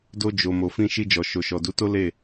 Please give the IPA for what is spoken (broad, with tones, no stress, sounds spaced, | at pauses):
d o˧ d͡ʒ o˨ m o˨ f ĩ˧ ʃ i˧ d͡ʒ ɔ˨ ʃ o˨ ʃ ɔ˨ d u˨˦ t o˦ l e˦˨